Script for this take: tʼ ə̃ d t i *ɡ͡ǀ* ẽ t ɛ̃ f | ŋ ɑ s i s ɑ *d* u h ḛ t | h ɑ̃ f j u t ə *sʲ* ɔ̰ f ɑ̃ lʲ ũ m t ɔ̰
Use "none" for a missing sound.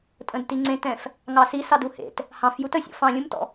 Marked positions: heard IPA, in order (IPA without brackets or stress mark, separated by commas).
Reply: ŋ͡ǀ, d, sʲ